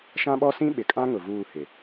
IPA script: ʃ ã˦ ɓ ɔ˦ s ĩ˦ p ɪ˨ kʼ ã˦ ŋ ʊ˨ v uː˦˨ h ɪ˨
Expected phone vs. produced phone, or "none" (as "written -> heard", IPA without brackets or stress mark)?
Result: p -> ɓ